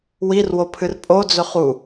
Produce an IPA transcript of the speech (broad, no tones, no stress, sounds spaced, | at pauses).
w i r w o pʰ ɨ r pʼ o d͡z ɵ χ u